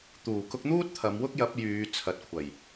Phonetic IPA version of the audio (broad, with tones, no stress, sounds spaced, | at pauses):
t̪ uː˨˩ k ʊ˧ k̚ n̪ uː˥ t̚ t̪ʰ ɐ˨˧ m w ʊ˥ k̚ j ɐ˨˥ p̚ j yː˨˧ t͡sʰ ɐ˨ t̚ kʷʰ ɐ˨˩ j